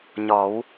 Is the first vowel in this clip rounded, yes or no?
yes